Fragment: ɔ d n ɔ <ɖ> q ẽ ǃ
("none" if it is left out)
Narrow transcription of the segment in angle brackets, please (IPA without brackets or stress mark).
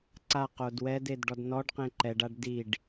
ɖ